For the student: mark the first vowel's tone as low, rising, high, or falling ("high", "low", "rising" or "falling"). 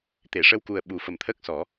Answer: low